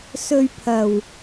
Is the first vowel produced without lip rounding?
no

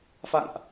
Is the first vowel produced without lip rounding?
yes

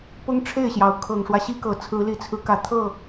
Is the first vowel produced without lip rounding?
no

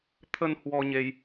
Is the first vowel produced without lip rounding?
yes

